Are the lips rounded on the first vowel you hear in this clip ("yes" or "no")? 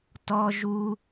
yes